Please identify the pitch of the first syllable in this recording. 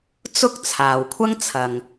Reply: high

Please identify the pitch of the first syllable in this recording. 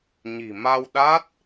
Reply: low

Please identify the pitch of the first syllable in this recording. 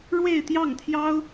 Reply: falling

